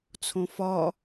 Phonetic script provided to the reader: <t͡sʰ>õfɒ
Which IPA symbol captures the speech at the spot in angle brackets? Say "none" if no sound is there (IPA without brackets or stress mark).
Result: t͡sʰ